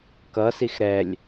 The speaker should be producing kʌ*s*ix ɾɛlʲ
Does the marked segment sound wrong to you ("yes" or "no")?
no